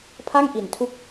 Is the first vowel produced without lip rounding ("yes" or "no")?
yes